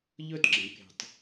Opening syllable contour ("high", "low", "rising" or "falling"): falling